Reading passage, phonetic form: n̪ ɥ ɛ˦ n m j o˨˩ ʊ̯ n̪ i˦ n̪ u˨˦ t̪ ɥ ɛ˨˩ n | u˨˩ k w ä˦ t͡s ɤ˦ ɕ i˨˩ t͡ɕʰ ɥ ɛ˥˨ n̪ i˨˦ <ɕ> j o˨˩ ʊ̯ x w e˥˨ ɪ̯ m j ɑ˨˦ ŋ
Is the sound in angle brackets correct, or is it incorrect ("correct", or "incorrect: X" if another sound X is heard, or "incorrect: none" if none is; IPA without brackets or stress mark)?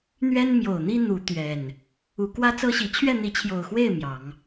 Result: incorrect: t͡ɕʰ